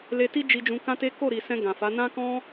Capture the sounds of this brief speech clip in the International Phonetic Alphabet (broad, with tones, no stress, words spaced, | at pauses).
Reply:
le˧ti˦ d͡ʒi˧d͡ʒũ˧ kã˦te˦ ko˦˨ɾi˨sɛ̃˧ ɡã˨fa˨˦ nã˦kɔ̃˦